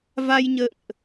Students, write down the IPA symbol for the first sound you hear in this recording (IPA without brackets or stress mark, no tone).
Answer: v